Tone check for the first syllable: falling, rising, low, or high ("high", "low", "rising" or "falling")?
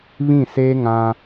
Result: falling